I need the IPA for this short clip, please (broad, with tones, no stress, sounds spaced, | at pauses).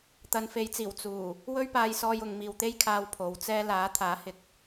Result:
t̪ ɐ˨˧ n f e˨˥ j t͡s iː˨˩ w t͡s uː˨˩ | w ɵ˥ ɥ p aː˧ j s ɔː˧ j ʊ˨ ŋ m iː˨ w t̪ e˥ j kʰ aː˧ w pʰ o˨˧ w t͡s ɛː˧ l aː˨˥ t̪ʰ aː˨˥ h ɪ˨ k̚